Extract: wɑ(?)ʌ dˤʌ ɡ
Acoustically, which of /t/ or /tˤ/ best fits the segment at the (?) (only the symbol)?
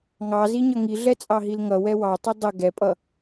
tˤ